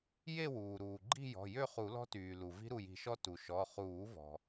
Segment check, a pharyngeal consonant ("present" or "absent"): absent